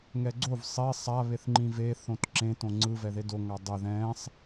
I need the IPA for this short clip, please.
ŋ ɛ ɡ͡ǀ o v sˤ e sˤ a β e θ ŋ͡ǃ ĩ v e θ õ t ǁ ẽ t õ ŋ͡ǀ ɯ v ɛ ð e d o ŋ a dˤ ɛ ð ɛ̃ sˤ

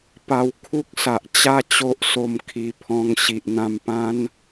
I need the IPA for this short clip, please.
p a˧ w kʰ u˦ k̚ s a˨ ʔ t͡ɕ a˥˧ t͡ɕ o˦ ʔ s o˧ m kʰ i˨˩ pʰ ɔ̃˧ ŋ ɕ i˨ ʔ n̪ ã˧ m p ã˦ n

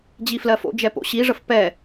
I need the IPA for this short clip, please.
d͡ʑ i f l ɜ f o̰ d͡ʒ ɛ p o̰ ɕ i ʐ ə f p ɛ

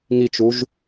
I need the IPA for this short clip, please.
ŋ i t͡ʃ u ʒ

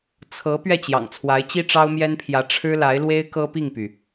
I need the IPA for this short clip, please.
t͡sʰ ɤ˧˥ p ɥ ɛ˥˩ t͡ɕ j ɑ̰˨˩ ŋ t͡sʰ w a˧˥ ɪ̯ t͡ɕ i˥ ʈ͡ʂ ɑ˥ ʊ̯ m j ɛ˥ n pʰ j ä˧˥ ʈ͡ʂʰ ɻ̩˥ l a˧˥ ɪ̯ l w e˥ ɪ̯ k ɤ˥ p i˥˩ ŋ p y˩

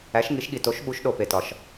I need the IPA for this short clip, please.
æ˩˧ ʃ ŋ i˩˧ ʃ ɠ i˩ t o˩˧ ʃ ɓ u˩˧ ʃ ɗ o˩ p e˩ t ɒ˩ ʃ

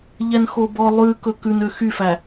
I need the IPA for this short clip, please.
ʎ ɛ n x o b ɔ lˠ ʉ k ɵ k ʉ n ø x y f æ

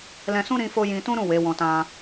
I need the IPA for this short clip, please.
l ɛ̃˧ s ũ˦ ɾ ĩ˦ f o˦ j ĩ˧ t ũ˦ ɾ ũ˦˨ w e˨˦ w ɔ̃˧ t ã˧

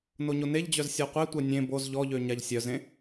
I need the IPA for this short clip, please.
n o ɲ o n e ʎ d͡ʑ œ z sʲ ɔ qʷ e tʷ ɛ nʲ ẽ b o z ʎ ɔ ʎ ø ɲ a ʎ sʲ œ z ẽ

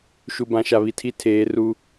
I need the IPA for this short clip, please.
ʃ u˨ b ã˨ ʃ a˨ β i˨ tʰ i˦ tʰ eː˨˦ r u˦

